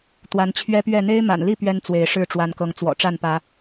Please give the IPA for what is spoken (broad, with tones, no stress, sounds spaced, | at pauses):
t̪ w a˨˦ n t͡ɕʰ ɥ ɛ˦ p ɥ ɛ˥˨ n̪ e˦ ɪ̯ m a̰˨˩ n l i˥˨ p ɥ ɛ˦ n t͡s w e˨˦ ɪ̯ ʂ ɻ̩˥˨ ʈ͡ʂ w a˨˦ n k ɤ˨˦ ŋ t͡s w ɔ̰˨˩ ʈ͡ʂ a˥˨ n p ä˨˦